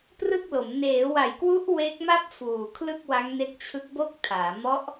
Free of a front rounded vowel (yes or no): yes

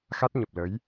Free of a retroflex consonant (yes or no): yes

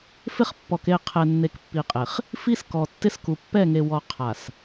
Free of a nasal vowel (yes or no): yes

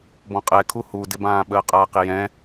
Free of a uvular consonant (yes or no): no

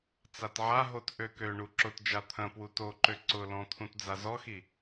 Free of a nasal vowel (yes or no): no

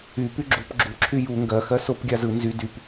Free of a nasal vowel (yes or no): yes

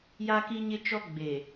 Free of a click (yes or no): yes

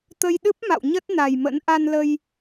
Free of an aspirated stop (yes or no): yes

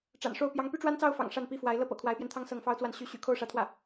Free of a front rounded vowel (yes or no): no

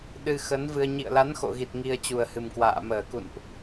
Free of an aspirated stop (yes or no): yes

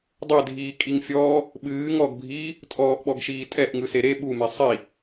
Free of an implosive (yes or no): no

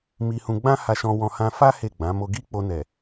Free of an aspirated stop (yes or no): yes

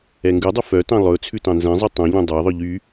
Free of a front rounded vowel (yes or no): no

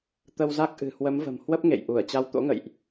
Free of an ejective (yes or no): yes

